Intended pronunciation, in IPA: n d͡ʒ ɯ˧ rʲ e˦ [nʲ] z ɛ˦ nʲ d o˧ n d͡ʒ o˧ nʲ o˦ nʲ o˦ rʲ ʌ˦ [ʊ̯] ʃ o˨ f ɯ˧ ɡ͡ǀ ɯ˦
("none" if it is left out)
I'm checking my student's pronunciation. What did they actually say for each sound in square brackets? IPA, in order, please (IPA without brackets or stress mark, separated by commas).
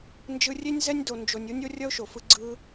nʲ, ʊ̯